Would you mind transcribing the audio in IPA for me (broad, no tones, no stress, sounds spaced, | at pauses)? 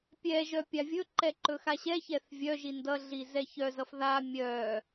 pʲ ɛ ʒ œ pʲ a vʲ ɵ ǃ ɛ ǃ ɵ x a ɕ ɛ ç ɛ θ vʲ œ ʒ i n d ʌ ɮ i z ɛ ç œ z ʌ f ð a mʲ œ